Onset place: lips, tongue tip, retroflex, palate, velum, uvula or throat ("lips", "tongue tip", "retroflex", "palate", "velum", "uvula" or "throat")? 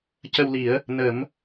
palate